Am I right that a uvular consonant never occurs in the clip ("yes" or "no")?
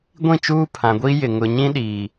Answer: yes